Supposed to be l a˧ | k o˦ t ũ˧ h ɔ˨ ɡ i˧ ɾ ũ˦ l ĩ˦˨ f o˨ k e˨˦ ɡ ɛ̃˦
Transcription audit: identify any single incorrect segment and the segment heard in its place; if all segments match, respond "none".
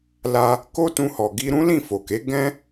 none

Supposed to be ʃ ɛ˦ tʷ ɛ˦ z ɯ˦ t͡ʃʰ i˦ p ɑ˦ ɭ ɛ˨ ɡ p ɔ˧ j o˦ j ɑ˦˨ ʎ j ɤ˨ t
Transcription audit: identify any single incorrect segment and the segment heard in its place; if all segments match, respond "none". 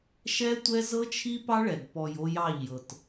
ɯ˦ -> ɤ˦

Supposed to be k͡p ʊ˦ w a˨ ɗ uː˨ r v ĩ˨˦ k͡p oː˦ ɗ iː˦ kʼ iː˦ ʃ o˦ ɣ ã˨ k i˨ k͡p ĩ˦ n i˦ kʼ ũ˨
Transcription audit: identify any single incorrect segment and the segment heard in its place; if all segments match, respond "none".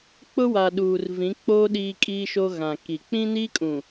none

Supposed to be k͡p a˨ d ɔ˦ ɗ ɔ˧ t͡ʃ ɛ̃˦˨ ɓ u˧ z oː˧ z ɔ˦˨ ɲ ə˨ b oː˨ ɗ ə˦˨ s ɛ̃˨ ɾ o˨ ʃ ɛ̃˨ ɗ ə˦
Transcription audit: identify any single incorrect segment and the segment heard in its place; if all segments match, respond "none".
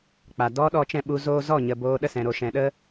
none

